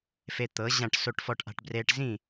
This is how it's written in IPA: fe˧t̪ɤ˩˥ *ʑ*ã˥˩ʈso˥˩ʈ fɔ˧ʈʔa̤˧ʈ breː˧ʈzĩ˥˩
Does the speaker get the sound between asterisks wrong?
no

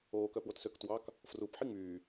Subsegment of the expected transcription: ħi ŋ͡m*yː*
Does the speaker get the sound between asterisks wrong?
no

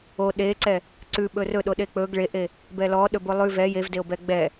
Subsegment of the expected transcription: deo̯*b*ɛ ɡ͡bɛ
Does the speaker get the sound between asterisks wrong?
no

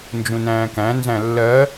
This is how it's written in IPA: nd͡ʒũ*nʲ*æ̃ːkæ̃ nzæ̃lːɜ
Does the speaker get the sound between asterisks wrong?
yes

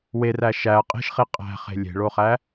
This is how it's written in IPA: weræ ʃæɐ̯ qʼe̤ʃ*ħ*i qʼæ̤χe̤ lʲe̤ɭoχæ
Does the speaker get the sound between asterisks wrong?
yes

